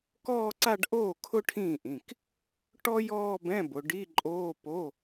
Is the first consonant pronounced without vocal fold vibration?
yes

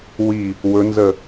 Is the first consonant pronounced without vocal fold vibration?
no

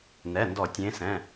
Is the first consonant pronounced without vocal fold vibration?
no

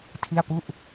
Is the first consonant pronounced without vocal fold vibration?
yes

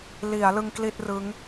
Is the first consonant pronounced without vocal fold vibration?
no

